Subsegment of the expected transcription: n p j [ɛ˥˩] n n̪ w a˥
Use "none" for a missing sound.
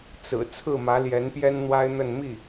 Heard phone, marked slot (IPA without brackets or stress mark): ɛ˥